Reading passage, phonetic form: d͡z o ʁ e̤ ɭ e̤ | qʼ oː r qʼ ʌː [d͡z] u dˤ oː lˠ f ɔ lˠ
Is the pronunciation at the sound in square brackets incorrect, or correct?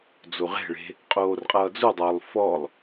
correct